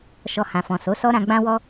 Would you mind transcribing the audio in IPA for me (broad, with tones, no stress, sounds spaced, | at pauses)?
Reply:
ʃ ɔ˧ h ã˨ f ɔ̃˨ s o˨˦ s ɔ˦ ɾ ã˧ ɡ͡b ã˦ w ɔ˦